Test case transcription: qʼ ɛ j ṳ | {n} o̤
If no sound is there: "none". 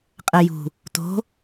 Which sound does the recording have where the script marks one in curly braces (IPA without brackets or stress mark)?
t